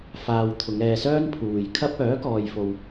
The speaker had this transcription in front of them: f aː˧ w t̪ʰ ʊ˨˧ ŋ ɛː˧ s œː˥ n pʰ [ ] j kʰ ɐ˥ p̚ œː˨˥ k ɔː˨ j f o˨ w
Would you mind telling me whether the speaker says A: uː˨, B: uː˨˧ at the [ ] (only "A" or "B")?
A